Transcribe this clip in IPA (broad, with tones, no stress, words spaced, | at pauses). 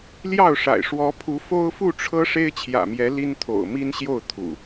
ljɑ˥˨ʊ̯ʂa̰˨˩ɪ̯ ʂwɔ˨˦pʰu˨˦ fo˦ʊ̯fu˥˨ʈ͡ʂʰɤ˦ ʂe˦ɪ̯t͡ɕʰjä̰˨˩mjɛ˨˦ li˦nt̪ʰo̰˨˩ʊ̯mi˦nɕjo˥˨ʊ̯ t̪ʰṵ˨˩